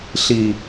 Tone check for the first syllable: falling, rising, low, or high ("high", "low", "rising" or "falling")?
low